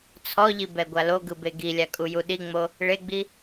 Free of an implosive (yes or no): no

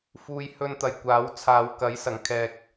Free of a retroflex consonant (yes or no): yes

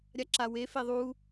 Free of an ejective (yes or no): yes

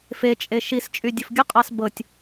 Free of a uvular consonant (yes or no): no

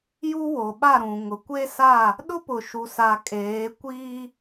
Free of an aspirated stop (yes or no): yes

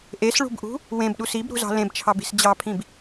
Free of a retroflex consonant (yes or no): no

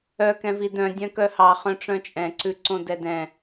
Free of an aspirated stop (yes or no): yes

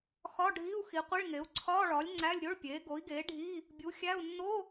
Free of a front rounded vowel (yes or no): yes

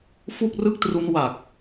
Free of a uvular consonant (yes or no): yes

